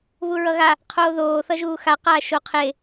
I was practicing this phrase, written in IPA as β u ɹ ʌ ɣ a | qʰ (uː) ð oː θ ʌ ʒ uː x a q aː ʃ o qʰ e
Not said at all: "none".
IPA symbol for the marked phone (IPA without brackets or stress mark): oː